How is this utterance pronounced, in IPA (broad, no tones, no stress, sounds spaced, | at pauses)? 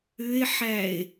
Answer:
ʏ e̯ ħ æ e̯